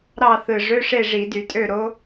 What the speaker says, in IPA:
ɾɑ˥˨θɯ˨˩ ʐø˧˥˧ʂe˥˨ ʐi˧˩˧dy˧˩˧tʼø˥˨ ɾo˦˥

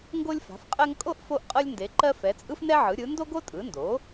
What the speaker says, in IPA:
ŋɡo˥lʲfa̤˩˥fqʼɜ˥ŋ kʼo˥ʔ fo˥ʔ qʼɤ˥lʲnde˩˥ǃɜ˥ fɛ˩˥t͡sʼɯ˥fnɛ˥ʕɯ˩˥ ɾʲɯ˩˥ ndo˥ɡo˥tʼɯ˩˥ndo˩˥

